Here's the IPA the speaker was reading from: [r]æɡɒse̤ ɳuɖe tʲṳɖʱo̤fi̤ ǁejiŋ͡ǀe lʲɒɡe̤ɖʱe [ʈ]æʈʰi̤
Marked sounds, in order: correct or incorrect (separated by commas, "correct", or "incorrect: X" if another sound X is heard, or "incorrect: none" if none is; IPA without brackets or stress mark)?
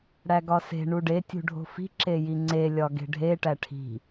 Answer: incorrect: ɽ, correct